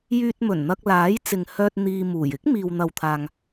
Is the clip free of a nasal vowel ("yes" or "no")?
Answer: yes